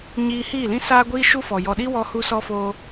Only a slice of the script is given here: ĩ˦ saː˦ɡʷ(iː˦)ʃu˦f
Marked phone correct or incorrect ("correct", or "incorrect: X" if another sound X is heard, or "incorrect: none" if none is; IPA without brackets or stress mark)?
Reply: correct